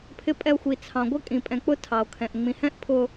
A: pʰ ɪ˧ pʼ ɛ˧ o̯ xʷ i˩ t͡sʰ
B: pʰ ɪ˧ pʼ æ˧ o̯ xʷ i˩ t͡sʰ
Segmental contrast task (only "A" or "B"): A